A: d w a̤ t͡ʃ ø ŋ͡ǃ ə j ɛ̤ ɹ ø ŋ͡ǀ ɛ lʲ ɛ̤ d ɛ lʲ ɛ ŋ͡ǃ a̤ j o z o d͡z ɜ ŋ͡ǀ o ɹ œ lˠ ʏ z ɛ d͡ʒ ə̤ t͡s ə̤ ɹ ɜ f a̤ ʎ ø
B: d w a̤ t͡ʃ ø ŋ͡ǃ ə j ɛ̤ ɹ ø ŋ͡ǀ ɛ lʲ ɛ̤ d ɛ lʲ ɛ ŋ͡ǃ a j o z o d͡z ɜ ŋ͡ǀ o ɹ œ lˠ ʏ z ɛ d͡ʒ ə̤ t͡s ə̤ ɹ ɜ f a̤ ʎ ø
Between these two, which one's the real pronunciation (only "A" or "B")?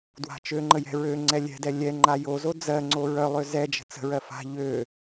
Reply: B